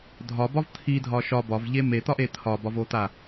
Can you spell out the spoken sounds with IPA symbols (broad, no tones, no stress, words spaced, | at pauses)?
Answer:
dʱɒbɒv t̪ʰidʱɒ ʃɒ bɒvʎe met̪ɒʔe t̪ʰɒbɒvot̪a